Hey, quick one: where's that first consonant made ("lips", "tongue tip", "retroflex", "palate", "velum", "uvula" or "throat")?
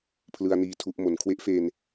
lips